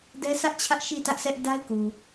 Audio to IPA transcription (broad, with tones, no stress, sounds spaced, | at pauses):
d ɛ˦ s ä˦ ʔ t͡ɕʰ ä˦ ʔ ʃ i˦˨ t ä˦ ʔ s ɛ˦ ʔ d a˦ ɪ̯ k u˨